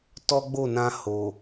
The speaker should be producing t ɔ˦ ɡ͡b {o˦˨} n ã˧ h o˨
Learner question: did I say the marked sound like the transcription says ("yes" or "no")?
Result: yes